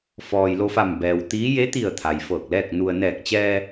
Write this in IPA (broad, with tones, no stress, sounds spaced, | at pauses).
f ɔː˩ j l o˧ f a˧˩ m b ɛː˩ w t̪ iː˧˥ j e˧˥ t̪ i˧˩ ə̯ t̪ʰ a˩ j f ɤː˧˩ k̚ l ɛː˥˨ k̚ n u˧ ə̯ n ɛː˧˩ k̚ t͡ɕ ɛː˧